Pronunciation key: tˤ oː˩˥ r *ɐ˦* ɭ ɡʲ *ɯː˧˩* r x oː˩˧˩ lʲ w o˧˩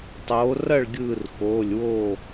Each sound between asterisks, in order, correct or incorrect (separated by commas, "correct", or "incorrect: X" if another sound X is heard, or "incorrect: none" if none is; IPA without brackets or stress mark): incorrect: ɐ˥˩, correct